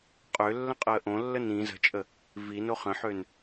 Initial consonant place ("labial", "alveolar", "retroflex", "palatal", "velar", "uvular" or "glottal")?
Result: uvular